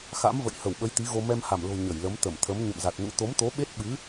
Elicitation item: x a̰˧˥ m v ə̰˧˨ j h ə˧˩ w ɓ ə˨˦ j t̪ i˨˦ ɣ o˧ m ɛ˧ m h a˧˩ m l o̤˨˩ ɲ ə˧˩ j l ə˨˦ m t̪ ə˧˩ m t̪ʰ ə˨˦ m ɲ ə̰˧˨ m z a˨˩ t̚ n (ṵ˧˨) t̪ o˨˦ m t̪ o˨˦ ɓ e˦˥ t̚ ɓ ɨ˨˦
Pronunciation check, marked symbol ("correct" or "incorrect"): incorrect